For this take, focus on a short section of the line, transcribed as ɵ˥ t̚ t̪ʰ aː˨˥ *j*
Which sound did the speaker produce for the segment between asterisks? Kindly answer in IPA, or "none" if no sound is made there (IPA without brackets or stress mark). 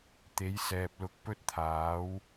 w